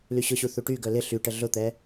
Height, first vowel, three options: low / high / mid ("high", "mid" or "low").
high